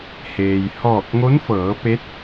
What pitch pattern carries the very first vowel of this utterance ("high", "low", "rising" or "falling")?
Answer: low